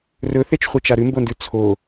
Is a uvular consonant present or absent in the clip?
present